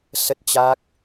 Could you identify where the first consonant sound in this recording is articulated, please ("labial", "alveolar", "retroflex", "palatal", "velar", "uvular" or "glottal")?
alveolar